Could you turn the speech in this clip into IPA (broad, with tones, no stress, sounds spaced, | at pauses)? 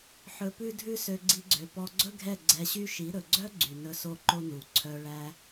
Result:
ħ ɵ˧ p ʉ˦ dʱ ʉ˦ s ø˧ ɡ͡ǀ i˧ ɡ͡ǀ ø˨ p ɔ˧ ɡ͡ǀ ɵ˦ ɡʱ ɛ˦˨ ɡ͡ǀ ɛ˧ ɕ y˦ ʃ i˨˦ ɾ ɵ˨ ɡ͡ǀ œ˦ ɡ͡ǀ y˨ n ɵ˧ s o˦˨ ǃ o˦ n u˨ ǀʰ œ˧ ɭ æ˦